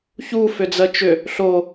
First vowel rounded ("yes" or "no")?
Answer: yes